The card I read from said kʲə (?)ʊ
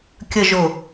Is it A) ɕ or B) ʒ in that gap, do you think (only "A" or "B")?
B